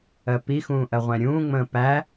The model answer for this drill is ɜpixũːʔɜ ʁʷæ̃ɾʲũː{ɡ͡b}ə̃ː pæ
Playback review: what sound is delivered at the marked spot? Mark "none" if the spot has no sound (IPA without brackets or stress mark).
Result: ŋ͡m